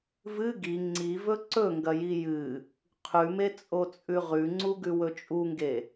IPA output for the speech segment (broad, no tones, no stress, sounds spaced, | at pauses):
v ɨ ɡ i ŋ͡ǀ i v ɵ ǀ ɵ ŋ ɡ ɐ j i j ɨ | qʰ ʉ m e t͡sʼ o t͡sʼ ʉ ʁ ʉ ŋ͡ǀ u ɡ ʉ w ɵ t͡ʃʼ u ŋ ɡ e